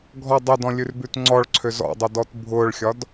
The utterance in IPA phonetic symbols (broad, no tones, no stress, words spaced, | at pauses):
ɡʱɔ dˤɛdɔ̃lʲʉrbʉt ŋ͡ǀɔɭǀʰøz ɔ̰dˤedɔt bʱʊːɭxʲɒd